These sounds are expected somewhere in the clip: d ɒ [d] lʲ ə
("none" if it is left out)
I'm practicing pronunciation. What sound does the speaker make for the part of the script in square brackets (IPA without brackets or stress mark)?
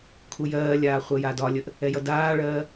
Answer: none